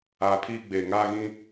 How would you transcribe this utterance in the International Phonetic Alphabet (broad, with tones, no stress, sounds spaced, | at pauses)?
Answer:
aː˨ pʰ iː˦ ɡ͡b eː˨ ŋ aː˦ ɣ ĩ˦